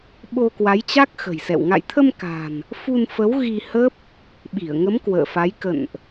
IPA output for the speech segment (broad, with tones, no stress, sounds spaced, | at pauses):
ɓ o˧ k w a˨˦ j t͡ɕ a˦˥ k̚ x ə̤˨˩ j s ɛ̰˧˨ w ŋ a̰˧˨ j t̪ʰ ə˧ m k a̤˨˩ n | f u˧ n f ə˨˦ w ɣ i˧ h ə˦˥ p̚ | ɓ i˧˩ ə̯ ŋ ə˨˦ m k w ə̰ː˧˨ f a˨˦ j k ə̰˧˨ n ʔ